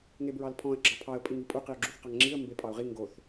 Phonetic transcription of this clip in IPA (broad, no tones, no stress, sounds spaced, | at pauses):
ŋ e b ɹ ɑ l pʰ ɔ̃ ə̯ ɡ͡ǁ ɑ pʰ ɑ ə̯ pʼ i ŋ i pʼ u q i ʊ̯ ɡ͡ǁ u θ q ɑ ŋ ŋ͡ǁ i ə̯ m b e pʼ ɑ ʊ̯ ʁ i ŋ ɡ o θ